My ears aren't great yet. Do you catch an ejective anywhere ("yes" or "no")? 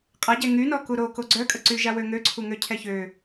yes